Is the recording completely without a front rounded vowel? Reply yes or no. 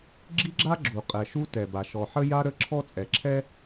yes